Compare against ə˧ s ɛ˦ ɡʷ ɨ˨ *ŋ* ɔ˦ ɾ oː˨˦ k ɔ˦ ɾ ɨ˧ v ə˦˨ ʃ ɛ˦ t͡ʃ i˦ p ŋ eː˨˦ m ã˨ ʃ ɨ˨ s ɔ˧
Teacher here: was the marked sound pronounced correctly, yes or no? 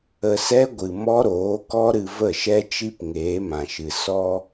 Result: no